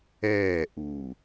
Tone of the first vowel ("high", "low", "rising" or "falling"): falling